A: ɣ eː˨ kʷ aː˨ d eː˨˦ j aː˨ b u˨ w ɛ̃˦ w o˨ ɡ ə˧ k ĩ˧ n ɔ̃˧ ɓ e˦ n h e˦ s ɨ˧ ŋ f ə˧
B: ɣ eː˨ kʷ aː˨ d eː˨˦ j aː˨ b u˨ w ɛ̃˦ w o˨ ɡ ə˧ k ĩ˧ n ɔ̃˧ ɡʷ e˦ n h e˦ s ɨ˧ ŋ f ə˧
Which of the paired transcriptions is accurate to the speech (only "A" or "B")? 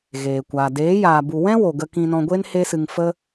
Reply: B